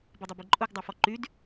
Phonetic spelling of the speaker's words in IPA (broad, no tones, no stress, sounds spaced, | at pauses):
b i dˤ i b i ǃʼ u ɡ dˤ u f ɔ ǃ y d